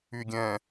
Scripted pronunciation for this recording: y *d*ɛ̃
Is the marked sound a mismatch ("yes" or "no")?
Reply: yes